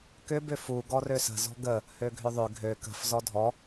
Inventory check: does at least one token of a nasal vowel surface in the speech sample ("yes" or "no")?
no